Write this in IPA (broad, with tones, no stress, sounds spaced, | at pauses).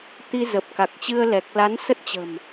t̪ i˧ z ə˨˩ p̚ k a˨˩ k̚ t͡ɕ ɨ˧ ə̯ l ɛ˨˩ k̚ l a˨˦ n s ə˦˥ t̚ t͡ɕ ə̤˨˩ m